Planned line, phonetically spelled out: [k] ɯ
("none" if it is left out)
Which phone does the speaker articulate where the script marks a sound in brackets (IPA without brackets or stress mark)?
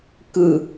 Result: k